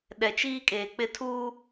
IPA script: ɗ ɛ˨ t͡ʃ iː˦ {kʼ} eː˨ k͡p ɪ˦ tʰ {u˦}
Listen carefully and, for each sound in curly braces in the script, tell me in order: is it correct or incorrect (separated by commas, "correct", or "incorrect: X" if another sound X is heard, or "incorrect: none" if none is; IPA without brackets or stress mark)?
correct, incorrect: uː˦